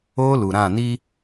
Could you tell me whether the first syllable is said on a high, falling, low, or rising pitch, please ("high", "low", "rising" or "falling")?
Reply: high